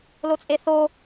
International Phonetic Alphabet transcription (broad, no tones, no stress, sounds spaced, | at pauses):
l o t͡sʼ e θ o